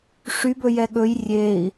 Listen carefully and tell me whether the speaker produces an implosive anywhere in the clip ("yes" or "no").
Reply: yes